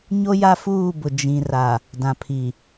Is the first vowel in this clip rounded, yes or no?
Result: yes